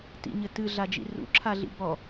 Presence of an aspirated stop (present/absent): present